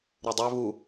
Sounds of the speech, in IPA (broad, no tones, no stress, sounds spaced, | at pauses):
ɾ u dˤ œ β u